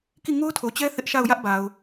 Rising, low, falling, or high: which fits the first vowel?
falling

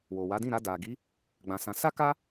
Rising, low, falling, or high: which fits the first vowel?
low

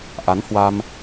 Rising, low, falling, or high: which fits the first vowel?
rising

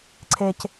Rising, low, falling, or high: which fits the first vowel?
low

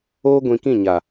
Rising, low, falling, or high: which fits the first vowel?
high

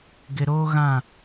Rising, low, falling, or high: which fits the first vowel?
low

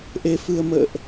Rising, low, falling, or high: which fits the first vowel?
low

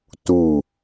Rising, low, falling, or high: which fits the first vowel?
falling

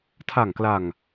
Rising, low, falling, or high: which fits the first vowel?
low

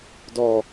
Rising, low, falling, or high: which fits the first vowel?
low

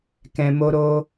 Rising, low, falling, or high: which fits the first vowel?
low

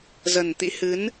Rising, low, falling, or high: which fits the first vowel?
low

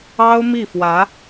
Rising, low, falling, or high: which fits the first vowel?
high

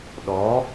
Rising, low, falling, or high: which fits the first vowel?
rising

